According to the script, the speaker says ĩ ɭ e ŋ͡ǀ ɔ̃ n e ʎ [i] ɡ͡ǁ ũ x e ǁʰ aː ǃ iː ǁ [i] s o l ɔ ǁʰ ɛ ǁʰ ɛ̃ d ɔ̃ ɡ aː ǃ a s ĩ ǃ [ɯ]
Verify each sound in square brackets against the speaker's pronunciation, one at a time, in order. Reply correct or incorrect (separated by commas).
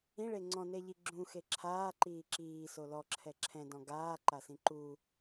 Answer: correct, incorrect, incorrect